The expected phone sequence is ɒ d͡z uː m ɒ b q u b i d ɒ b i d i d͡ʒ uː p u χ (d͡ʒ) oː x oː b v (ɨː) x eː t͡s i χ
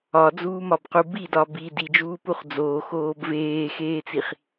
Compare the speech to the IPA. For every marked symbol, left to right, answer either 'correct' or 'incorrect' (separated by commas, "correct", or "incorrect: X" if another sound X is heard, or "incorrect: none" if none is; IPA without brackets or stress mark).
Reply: incorrect: d͡z, incorrect: eː